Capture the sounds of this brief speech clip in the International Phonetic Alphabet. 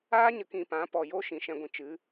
aː˦ɲə˨kĩ˨ pã˨˦pɔ˨jo˦ ʃĩ˨ʃɛ̃˧ɡʷĩ˨ t͡ʃɨ˨˦

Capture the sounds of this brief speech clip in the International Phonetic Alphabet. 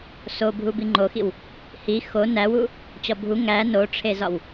so bʱubiŋ͡ǃoxiw | hi xo næwu | t͡ɕɒbʱu ŋæ noʈ͡ʂʰezɒw

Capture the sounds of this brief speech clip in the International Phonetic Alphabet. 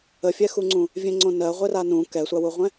əfʲɛxuŋ͡ǀũ | vʲẽŋ͡ǀõnɜ ʁʷeranũ kɛsʷawuʁʷɛ̃

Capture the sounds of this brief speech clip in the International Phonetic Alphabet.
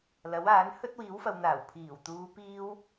lɐ˨˥waː˨˥n hɵ˥t̚wiː˨˥wfɐ˨wn̪aː˨˩w pʰiː˨˩w t̪uː˨˧piː˧w

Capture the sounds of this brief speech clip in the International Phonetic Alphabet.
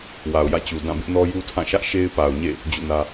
wa˨ʊ̯jä̰˦˨t͡ɕu˨ dã˦˨bɪ˦ʔnɔ˦ ju˦tʰã˦˨ʃä˦ʔ ʃe˦ɪ̯pa˨ʊ̯ɲḛ˦˨ | d͡ʑṵ˦˨nä˦

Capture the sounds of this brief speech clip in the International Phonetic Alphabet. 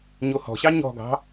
ɲohɔ̤ɕɑ ɲɔ̤ɡɑ̤

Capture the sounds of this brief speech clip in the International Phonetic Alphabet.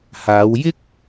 haː˨˧wjɪ˥k̚

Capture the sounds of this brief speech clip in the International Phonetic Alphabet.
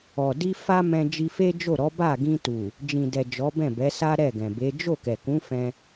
ɔ˨di˧ fa˦mɛ̃˧ d͡ʒi˧fe˦d͡ʒo˦˨ɾɔ˨˦ ba˦˨ɡĩ˧tu˨ | d͡ʒĩ˨dɛ˨ d͡ʒɔ˨˦bɛ̃˦˨bɛ˨˦sa˦ ɾɛ˦˨ɡɛ̃˨be˨˦ d͡ʒo˦˨ kɛ˨kũ˨˦ fɛ̃˧

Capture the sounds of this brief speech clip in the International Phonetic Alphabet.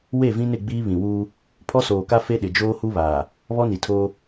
we˦˨vĩ˦nɪ˦˨ɡ͡biː˦ βĩ˨wuː˦ | pʰɔ˦soː˨ka˦ fe˦ɗɪ˨ d͡ʒoː˦hu˦ βaː˨ | βɔ˦ni˨tʰoː˦

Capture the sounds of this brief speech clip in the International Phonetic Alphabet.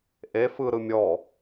ʔe fɯɾɯ mʲɔ

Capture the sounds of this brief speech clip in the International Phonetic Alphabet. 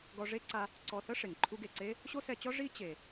ɡɔ˧ʐe˥ǀa˧ | ǀɔ˧θɤ˥ ʂe˩ŋǃʰu˧ ɡe˩ǀe˥ | ɕo˥sɛ˧t͡ɕɔ˥ ʐi˥ t͡ɕe˩

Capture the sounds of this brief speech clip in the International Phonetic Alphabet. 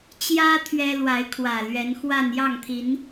t͡ɕjä˦ t̪ʰɥɛ˦ lwa˨˦ɪ̯kʰwä˨˩ lɥɛ˨˦nxwa˥˨n jɑ˥˨ŋt̪ʰi˨˦n

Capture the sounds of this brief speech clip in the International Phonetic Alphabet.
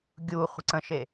ɡʲu χʷə̤ǀə̃ʃe

